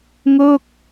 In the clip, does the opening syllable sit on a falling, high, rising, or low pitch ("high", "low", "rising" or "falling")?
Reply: falling